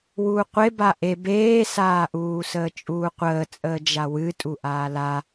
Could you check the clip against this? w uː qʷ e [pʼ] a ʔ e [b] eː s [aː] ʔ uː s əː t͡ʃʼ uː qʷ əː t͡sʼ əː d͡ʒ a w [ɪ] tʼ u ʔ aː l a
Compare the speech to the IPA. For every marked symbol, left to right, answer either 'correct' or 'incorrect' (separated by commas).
incorrect, correct, correct, incorrect